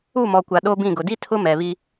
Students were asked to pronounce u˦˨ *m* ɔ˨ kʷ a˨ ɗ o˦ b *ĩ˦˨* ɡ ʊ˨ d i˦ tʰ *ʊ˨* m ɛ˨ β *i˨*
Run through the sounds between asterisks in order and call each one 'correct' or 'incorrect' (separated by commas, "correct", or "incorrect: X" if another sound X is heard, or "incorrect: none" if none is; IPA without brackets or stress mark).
correct, correct, incorrect: ʊ˦, incorrect: i˦